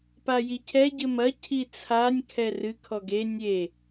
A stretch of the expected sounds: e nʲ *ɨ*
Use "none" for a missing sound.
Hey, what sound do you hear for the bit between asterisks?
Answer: e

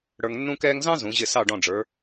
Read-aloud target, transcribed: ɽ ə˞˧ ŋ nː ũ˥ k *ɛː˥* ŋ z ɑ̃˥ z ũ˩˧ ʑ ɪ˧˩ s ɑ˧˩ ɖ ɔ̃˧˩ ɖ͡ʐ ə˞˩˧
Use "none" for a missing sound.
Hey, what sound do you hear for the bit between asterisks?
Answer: ɛː˥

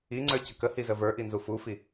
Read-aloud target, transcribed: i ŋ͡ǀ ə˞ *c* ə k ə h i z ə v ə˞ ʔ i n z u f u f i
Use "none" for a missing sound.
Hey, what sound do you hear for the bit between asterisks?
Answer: c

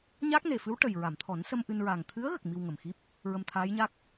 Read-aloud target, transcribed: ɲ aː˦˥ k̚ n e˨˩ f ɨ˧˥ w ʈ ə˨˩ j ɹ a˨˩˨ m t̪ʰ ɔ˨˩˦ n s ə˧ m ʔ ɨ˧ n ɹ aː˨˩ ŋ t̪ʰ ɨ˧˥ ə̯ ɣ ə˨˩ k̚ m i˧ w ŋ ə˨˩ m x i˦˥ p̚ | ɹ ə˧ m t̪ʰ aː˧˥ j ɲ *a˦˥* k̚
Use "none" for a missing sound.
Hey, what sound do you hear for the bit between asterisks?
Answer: a˦˥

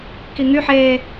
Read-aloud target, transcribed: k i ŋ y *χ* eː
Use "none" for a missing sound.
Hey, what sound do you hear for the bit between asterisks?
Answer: ħ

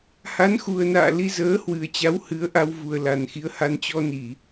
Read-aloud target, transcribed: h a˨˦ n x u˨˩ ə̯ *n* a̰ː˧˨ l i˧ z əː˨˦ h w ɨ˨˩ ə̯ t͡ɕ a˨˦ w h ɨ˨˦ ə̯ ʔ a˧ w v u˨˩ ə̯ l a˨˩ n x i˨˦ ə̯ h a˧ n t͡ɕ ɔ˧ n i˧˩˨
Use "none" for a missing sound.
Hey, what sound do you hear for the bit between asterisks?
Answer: n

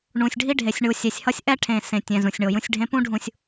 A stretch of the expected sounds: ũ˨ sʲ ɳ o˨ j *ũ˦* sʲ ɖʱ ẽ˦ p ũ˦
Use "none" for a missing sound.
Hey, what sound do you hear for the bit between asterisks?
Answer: ũ˦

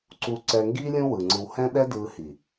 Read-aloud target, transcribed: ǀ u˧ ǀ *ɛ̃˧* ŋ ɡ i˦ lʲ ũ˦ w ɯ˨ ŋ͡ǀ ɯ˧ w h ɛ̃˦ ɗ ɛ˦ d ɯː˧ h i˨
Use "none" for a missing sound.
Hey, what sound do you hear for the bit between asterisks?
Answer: ɛ˧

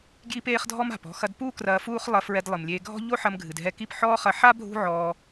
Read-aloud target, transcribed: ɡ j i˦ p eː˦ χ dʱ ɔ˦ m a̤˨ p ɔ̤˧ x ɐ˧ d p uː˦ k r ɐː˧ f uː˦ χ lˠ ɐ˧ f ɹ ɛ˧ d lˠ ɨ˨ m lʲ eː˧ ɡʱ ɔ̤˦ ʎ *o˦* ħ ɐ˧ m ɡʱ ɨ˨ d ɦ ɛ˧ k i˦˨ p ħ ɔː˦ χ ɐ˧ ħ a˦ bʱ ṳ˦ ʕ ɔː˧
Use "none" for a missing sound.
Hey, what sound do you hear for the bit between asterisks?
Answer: o˦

